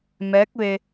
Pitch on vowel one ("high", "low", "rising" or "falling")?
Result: rising